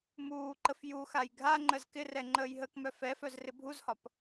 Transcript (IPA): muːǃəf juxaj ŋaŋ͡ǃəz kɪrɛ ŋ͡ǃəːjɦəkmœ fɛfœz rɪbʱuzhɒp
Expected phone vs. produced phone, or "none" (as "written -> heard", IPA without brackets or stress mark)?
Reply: ŋ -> ɡʱ